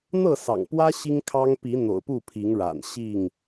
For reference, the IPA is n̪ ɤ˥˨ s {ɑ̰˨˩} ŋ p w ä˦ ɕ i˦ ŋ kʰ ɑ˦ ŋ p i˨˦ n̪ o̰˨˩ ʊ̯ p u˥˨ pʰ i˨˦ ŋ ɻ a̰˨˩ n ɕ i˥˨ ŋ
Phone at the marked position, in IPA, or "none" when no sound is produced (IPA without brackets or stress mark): ɑ̰˨˩